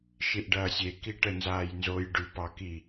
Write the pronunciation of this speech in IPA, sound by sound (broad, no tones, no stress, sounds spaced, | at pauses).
ʃ i ʔ ɖ ɐː sʲ e k i ʈ ə n z aː j n z o j ɖ ʉ p ɑ k i